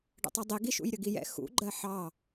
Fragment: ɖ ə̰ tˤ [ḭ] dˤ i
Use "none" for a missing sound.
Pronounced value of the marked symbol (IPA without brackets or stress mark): i